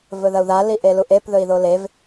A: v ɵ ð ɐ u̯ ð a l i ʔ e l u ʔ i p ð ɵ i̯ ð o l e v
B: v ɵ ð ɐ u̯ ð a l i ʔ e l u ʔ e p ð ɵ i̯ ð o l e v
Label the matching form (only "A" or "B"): B